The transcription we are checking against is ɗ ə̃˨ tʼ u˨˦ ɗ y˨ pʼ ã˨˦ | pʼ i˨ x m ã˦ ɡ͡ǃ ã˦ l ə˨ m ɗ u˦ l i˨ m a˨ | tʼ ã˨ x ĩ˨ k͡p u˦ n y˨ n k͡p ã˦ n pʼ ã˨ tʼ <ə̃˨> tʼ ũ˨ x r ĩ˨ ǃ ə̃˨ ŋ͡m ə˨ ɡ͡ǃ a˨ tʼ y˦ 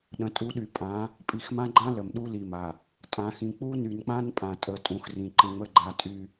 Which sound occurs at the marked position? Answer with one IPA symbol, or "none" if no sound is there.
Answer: ə˨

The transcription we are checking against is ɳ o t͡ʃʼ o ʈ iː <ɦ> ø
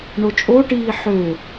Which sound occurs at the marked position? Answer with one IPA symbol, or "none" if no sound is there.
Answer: ħ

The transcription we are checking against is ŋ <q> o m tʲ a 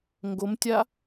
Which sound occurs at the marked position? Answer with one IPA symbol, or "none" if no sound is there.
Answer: ɡ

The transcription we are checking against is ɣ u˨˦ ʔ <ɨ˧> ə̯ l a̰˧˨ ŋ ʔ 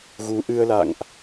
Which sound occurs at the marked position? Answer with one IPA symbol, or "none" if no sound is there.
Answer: ɨ˧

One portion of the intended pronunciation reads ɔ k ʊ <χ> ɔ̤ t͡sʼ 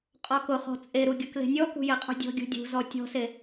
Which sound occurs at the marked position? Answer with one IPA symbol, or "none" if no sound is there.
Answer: χ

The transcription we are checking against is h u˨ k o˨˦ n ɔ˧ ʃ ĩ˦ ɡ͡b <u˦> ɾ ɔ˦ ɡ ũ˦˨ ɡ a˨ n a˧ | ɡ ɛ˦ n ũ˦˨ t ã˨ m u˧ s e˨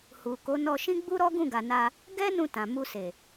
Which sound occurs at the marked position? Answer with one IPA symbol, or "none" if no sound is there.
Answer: u˦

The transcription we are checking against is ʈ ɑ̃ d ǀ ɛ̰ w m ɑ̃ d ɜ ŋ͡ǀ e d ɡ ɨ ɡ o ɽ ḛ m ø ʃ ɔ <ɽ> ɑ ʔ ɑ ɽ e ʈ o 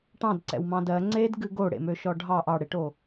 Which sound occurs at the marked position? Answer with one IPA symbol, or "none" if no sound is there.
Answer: ɖʱ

